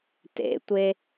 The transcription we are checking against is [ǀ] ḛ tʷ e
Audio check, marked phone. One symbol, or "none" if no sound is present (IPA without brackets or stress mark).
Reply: t